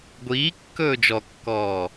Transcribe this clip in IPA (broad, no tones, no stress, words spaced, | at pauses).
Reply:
ɡʷiː kːɵːd͡ʒɔkːɔː